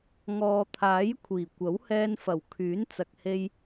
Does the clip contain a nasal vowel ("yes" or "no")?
no